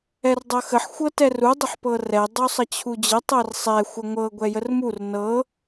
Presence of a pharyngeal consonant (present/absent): present